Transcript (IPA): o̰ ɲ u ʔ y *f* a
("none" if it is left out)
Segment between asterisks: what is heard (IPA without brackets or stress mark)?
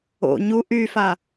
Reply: f